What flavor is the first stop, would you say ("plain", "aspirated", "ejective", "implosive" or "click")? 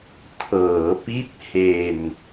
aspirated